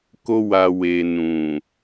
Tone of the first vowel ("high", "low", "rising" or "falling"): high